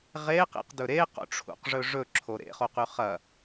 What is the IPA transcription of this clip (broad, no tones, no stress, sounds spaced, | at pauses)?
ʁ e q ḭ q d ɵ ɾ e q o̰ ʈ͡ʂʰ ṵ q ʐ ɵ ʐ ɵ ǁʰ o ɾ ḛ χ o q ʉ χ ɐ